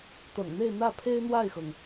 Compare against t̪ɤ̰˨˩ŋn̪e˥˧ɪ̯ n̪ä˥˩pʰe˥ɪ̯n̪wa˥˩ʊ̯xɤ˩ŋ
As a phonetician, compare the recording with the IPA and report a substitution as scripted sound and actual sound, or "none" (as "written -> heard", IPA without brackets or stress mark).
ʊ̯ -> ɪ̯